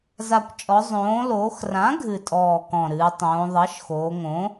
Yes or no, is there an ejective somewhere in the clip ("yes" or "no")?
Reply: yes